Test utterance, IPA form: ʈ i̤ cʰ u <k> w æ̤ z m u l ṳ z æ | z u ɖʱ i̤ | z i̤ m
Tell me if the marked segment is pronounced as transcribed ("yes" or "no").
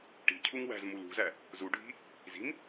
no